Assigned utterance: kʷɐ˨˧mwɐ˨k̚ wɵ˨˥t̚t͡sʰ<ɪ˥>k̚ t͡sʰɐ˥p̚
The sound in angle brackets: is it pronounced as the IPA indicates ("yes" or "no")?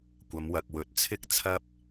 yes